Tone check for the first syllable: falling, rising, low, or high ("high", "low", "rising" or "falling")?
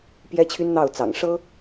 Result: high